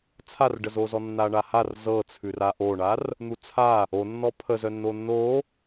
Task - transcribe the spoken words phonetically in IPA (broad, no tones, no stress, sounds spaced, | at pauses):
t͡sʰ a r ɖ ə z o z ɔ nː a ɳ a h a r z ɤ t͡sʰ ʉ r a ʔ o ɳ a r | n̪ u t͡sʰ a | o nː ɔ pʰ ə z œ nː o nː o